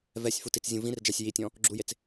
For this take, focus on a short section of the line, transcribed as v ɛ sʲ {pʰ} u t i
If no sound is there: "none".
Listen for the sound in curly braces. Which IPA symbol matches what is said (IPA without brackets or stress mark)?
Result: f